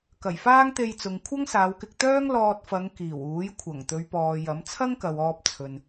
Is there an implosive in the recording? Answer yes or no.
no